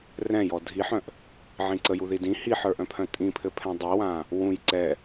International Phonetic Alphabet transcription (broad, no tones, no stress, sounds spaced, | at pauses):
r ɛ̃ j ɔ dʱ i ħ œ̃ ʔ | ʕ ĩ ǀ ə j u ð i d ĩ h i ħ ə˞ ʔ œ̃ pʰ œ̃ tʼ ĩ pʰ ɘ pʰ ɛ̃ dˤ i w ã | w ũ j ǀ ɛ